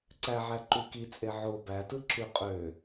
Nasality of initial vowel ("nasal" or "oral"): oral